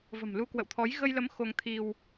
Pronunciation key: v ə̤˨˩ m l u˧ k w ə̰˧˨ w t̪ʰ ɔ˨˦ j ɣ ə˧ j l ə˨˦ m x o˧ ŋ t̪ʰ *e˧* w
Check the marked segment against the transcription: incorrect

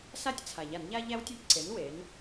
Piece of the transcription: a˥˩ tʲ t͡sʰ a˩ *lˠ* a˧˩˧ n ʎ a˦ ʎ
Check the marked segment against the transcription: incorrect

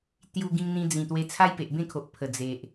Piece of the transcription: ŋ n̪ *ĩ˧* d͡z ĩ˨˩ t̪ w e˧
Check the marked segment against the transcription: correct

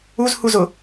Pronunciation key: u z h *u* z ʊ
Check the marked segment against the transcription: correct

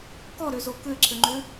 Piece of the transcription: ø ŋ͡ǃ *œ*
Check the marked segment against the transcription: incorrect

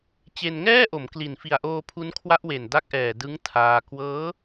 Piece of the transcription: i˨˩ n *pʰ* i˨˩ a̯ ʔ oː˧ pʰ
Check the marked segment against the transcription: incorrect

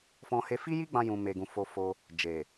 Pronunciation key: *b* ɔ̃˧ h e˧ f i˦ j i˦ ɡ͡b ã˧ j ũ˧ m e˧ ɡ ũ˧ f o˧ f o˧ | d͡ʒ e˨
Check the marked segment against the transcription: incorrect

